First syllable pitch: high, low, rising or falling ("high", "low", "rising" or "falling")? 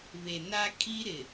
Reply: low